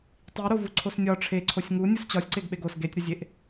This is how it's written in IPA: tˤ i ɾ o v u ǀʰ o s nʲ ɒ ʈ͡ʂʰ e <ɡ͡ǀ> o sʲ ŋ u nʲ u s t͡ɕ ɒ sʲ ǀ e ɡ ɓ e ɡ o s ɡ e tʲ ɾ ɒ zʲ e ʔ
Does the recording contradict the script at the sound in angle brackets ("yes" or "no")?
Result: yes